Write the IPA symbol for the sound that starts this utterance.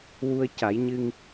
w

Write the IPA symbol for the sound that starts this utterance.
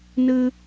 n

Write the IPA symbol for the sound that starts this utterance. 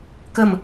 k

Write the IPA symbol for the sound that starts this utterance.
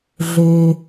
ɮ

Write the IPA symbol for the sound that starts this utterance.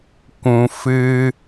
kʷ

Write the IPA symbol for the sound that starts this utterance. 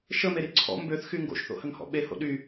ʃ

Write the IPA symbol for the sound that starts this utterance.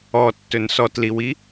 ɔ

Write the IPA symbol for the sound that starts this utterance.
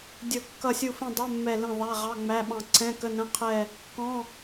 dʲ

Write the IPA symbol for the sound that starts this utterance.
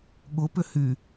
ɠ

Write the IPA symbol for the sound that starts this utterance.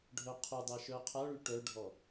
ɖʱ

